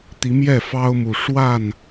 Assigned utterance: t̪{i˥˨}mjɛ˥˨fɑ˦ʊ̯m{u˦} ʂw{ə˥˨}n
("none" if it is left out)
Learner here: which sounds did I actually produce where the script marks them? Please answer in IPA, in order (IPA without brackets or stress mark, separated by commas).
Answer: i˨˦, u˨˩, a˥˨